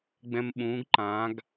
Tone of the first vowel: high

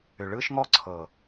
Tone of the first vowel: low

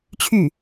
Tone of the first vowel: falling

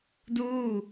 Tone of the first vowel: falling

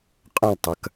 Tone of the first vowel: falling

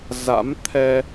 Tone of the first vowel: rising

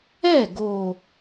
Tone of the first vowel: falling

